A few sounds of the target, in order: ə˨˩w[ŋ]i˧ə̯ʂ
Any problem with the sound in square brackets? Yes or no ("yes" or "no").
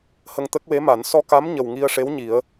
no